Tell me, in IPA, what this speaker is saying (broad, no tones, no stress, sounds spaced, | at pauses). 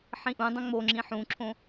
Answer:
ħ ĩ ʔ ũ dˤ õ ŋ͡m o ŋ͡ǁ ĩ ħ ũ ǁʰ õ